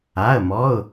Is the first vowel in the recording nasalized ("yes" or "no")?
no